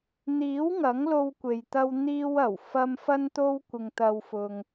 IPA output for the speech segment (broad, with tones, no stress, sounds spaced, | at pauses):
n̪ iː˨˥ w ŋ ɐ˨˥ ŋ l o˧ w kʷ e˨ j t̪ ɐ˧ w n̪ iː˧ w ɐ˨˩ w f ɐ˧ m f ɐ˥ n t̪ o˥ w kʷ ɪ˧ ŋ t̪ ɐ˧ w f ʊ˧ ŋ